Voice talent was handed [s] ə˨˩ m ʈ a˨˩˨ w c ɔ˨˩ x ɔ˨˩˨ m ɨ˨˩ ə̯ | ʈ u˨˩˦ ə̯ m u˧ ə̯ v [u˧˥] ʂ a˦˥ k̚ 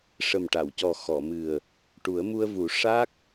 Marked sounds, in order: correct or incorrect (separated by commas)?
incorrect, incorrect